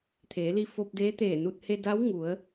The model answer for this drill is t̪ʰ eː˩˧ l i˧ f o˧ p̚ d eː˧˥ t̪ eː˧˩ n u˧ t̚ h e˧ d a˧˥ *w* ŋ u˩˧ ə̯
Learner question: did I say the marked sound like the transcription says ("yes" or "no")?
yes